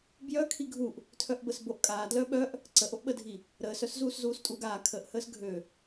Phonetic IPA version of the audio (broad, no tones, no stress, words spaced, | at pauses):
bjœ kʰiɡʱuʔ | tʰœʔbəsboʔkʼaː dlœɓœʔ | ǀəʔoʔɓədʱi | ɾəːsœs zuːszuːstʼuːɡaː kʰəʔhəːs ɡʱø